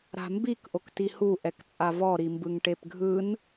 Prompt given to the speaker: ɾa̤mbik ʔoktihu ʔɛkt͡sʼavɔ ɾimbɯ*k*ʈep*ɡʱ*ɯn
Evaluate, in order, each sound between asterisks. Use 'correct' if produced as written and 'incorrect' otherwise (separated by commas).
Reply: incorrect, correct